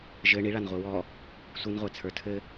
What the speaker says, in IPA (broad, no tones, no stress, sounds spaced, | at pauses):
ʒ ɘ ɳ i ɭ a n ʁʷ i w ɔ | sʷ ɨ n ʁʷ ɛ t͡sʰ ə˞ tʰ ɘ